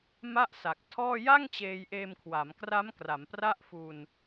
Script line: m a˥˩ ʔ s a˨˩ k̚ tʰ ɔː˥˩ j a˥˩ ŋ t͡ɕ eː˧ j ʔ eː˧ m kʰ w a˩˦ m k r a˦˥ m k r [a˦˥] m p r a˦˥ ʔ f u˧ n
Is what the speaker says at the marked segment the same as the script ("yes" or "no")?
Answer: no